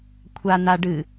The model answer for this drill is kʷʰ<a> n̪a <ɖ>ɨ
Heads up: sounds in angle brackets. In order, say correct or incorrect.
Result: correct, correct

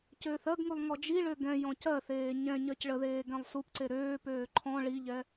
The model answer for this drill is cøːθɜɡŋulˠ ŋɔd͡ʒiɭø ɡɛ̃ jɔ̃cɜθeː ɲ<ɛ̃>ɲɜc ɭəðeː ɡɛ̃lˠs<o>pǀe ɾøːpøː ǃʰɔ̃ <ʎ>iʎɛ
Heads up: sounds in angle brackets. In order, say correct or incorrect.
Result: correct, incorrect, incorrect

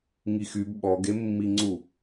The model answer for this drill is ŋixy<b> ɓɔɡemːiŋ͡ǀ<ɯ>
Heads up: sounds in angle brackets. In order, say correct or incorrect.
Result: correct, incorrect

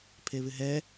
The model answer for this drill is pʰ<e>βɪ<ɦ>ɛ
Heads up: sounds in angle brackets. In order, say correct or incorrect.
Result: correct, correct

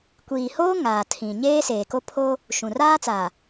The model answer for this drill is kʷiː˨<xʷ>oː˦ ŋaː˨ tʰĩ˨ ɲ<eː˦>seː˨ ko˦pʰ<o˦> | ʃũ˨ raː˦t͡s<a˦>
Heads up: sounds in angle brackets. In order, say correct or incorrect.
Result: incorrect, correct, correct, incorrect

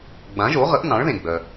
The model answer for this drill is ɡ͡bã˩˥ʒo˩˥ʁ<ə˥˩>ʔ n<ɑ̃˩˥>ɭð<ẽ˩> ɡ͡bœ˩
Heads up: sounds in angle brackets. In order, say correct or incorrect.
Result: incorrect, correct, correct

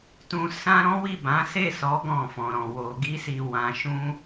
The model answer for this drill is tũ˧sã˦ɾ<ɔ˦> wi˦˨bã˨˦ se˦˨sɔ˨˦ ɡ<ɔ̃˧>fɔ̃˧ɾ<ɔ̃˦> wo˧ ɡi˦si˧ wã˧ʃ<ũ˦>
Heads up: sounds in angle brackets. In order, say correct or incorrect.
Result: incorrect, incorrect, incorrect, correct

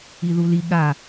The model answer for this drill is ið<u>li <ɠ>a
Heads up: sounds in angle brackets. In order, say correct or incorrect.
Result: correct, correct

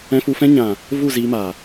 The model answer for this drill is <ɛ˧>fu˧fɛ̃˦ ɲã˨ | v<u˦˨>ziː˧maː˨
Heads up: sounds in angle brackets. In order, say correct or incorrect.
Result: incorrect, correct

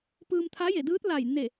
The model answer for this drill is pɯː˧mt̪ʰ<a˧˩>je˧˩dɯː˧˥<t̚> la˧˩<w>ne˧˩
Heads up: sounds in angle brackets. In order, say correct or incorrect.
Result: incorrect, correct, incorrect

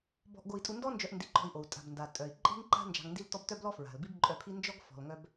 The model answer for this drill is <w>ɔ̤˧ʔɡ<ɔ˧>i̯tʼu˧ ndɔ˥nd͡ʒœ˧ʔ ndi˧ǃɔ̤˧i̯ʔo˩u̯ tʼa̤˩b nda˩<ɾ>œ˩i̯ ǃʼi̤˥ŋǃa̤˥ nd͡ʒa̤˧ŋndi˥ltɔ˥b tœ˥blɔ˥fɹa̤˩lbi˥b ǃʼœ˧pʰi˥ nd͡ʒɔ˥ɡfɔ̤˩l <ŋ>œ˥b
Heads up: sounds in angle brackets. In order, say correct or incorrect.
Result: incorrect, incorrect, incorrect, correct

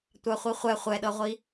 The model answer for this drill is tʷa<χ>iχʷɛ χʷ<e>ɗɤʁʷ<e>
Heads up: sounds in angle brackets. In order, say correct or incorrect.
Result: incorrect, incorrect, incorrect

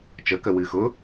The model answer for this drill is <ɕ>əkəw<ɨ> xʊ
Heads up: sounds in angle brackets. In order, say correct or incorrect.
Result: incorrect, correct

